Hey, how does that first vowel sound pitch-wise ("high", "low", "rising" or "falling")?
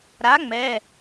rising